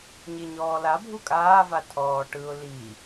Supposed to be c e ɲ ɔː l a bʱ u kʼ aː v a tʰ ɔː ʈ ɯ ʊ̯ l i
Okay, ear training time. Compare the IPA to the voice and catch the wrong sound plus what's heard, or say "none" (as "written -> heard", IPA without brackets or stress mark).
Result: c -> ɲ